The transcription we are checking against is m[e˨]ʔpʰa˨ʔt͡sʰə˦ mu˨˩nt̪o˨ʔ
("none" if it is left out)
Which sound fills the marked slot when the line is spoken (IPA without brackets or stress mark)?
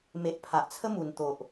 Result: e˨